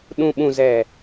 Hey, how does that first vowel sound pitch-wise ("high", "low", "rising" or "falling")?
low